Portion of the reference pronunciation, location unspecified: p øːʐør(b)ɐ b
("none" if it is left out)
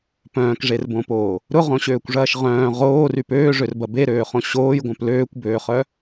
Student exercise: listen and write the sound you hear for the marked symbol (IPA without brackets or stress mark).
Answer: b